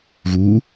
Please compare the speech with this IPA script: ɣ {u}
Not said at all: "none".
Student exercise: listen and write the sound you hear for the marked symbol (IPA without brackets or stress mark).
u